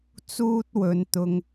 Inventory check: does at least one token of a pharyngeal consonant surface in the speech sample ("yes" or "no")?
no